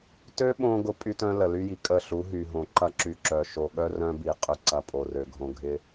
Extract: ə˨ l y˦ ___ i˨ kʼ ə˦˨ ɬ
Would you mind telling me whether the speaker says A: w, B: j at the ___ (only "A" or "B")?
B